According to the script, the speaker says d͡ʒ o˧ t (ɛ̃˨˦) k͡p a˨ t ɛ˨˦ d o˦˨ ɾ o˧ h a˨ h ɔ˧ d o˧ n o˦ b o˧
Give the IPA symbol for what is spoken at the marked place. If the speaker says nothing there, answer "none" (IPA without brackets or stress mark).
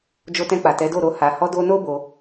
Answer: ɛ̃˧